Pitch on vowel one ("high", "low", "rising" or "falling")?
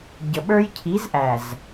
low